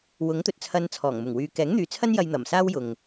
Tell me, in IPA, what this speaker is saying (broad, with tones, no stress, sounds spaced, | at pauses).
w ʊ˨˥ ŋ t̪ ɵ˨ t̚ t͡sʰ ɐ˧ n t͡sʰ ɔː˨˩ ŋ m ʊ˨˩ ŋ w yː˧ k ɛː˨˥ ŋ n̪ yː˨ t͡sʰ ɐ˥ n j ɐ˧ j n̪ ɐ˨˩ m s aː˥ w j ʊ˨ ŋ